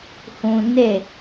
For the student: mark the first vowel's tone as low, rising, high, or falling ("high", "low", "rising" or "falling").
high